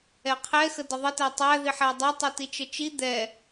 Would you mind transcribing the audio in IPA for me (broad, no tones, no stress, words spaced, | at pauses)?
ɛqʰɛ xədəðˤətæ tˤæ ðiħædˤæ tˤɛtit͡ʃət͡ʃi d̪ɛ